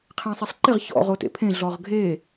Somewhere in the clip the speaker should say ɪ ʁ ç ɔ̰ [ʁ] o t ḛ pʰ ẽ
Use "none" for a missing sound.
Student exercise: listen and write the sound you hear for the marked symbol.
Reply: ʁ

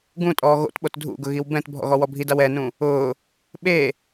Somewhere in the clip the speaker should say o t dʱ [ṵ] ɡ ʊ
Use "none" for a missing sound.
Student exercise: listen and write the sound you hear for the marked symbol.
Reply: ṵ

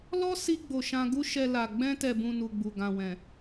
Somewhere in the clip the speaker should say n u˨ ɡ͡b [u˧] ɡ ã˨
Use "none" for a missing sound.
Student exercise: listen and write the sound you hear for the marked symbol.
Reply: u˨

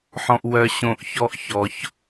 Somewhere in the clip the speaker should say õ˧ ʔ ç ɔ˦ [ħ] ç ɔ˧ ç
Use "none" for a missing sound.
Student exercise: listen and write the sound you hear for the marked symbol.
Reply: ʔ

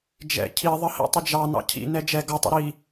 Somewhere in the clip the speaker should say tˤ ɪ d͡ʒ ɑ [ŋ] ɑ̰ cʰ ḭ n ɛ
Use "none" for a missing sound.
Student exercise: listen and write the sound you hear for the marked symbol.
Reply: n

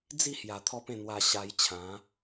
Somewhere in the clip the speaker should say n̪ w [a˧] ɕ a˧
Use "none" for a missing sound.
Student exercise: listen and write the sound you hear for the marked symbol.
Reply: a˧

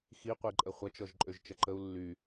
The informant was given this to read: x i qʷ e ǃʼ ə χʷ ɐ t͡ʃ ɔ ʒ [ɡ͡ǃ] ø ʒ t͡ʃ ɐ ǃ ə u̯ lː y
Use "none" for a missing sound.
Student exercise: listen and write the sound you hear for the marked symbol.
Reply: ǃʼ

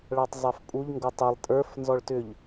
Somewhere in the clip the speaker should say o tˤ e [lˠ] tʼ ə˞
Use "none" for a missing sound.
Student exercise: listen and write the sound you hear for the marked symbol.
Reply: lˠ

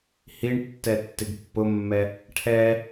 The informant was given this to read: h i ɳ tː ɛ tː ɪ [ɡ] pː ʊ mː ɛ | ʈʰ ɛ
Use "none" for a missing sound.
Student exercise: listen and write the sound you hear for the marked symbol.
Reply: ɡ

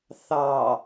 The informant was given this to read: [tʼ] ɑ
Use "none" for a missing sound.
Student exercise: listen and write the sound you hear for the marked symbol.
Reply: θ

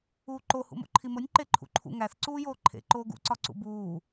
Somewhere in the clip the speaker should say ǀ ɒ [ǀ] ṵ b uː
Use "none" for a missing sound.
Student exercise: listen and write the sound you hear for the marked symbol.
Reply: ǀ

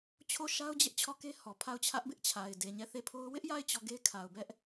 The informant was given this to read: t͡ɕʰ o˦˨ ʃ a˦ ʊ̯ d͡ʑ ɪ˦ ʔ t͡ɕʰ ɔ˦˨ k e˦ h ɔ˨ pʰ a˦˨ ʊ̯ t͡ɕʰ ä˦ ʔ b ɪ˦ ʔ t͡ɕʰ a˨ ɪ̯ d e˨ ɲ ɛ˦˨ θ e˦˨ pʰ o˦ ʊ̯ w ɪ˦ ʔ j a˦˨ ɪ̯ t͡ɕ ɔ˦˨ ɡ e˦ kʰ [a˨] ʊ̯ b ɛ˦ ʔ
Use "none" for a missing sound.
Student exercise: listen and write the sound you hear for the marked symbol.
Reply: a˨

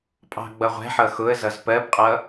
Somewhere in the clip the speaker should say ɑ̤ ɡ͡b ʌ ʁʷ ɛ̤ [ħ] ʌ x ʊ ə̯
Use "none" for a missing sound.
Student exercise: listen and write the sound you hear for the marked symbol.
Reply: ħ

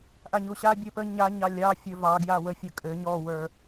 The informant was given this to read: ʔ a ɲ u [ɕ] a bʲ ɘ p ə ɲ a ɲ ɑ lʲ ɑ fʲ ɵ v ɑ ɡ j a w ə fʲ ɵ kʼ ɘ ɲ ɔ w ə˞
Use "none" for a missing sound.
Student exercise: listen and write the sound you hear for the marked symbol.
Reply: ɕ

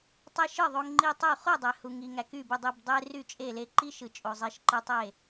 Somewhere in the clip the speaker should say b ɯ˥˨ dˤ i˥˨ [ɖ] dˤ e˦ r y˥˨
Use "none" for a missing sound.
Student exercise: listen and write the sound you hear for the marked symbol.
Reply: b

